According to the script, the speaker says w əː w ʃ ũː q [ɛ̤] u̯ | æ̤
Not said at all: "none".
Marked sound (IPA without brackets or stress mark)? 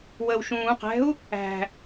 ɛ̤